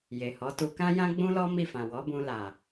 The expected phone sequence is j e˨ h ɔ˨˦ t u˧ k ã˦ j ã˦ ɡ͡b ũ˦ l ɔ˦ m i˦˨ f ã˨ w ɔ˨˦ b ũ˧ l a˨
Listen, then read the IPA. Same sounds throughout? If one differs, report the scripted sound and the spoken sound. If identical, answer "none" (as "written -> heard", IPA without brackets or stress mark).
none